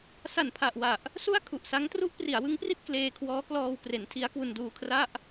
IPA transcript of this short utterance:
sa˨˩npʰa˨˩ʔwa˨˩ʔ | su˥˩a̯kʰu˨˩ʔsa˦˥ŋ tru˦˥ʔpri˩˦a̯wɯ˦˥ŋpri˥˩t̚ kleː˧kʰwɔː˦˥ klɔː˧wkre˩˦ntʰi˦˥a̯kwu˧n duː˧kʰra˥˩ʔ

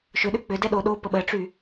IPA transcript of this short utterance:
ʃʏɗʏ k͡pʏdɛ ɗo ɗo pəɓəʈ͡ʂy

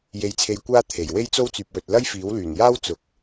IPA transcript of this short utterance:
je˧jt͡sʰe˧jkʷaː˥ t̪ʰe˨˩j we˥jt͡so˥wt͡syː˨p̚wɵ˨t̚ lɐ˥jfiː˨˥wlyː˨˩njaː˥w t͡sʊ˨˥k̚

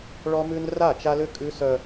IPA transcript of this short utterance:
ɭɔ˦mʉ˦n ra˦˨t͡ʃa˦lʏ˦ kʼʉ˦sœ˦

